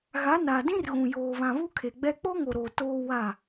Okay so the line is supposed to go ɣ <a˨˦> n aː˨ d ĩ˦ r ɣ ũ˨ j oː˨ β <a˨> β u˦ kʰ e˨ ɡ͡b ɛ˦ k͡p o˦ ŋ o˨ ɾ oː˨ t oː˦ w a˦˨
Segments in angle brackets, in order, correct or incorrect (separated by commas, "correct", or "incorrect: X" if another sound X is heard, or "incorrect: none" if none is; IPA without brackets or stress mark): correct, incorrect: ã˨